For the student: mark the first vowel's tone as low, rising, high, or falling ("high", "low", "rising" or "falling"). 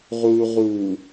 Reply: low